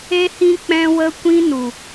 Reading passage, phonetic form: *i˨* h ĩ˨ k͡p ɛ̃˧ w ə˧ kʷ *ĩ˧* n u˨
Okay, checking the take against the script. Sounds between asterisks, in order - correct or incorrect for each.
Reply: incorrect, correct

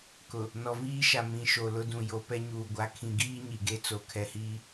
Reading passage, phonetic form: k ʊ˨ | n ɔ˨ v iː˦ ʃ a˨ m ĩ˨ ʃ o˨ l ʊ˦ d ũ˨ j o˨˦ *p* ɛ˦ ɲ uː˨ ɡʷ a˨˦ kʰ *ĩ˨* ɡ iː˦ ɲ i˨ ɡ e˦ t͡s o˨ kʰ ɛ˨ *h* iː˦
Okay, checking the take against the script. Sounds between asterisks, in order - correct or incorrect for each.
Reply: correct, correct, correct

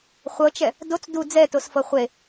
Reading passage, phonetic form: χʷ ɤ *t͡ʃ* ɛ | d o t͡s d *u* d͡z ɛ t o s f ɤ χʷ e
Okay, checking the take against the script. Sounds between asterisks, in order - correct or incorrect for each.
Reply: correct, correct

